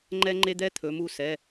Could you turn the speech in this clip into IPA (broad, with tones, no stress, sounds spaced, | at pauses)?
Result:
ŋ͡ǃ ɛ˦˥ ŋ͡ǃ e˦˥ d̪ ɛ˦˥ t̪ʰ ɵ˩˧ m u˦˨ s ɛ˩˧˩